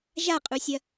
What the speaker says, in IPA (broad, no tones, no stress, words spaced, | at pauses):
ʒaqʼusʲɐ